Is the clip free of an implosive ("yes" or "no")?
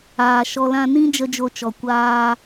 yes